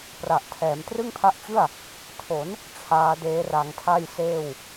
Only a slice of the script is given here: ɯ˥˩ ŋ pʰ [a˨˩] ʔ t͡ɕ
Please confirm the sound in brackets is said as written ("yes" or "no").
no